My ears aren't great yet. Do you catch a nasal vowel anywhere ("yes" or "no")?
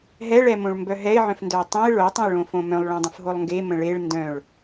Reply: yes